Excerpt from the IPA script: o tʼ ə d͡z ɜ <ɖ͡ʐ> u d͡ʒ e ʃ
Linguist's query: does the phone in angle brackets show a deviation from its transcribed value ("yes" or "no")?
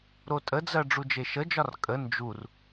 no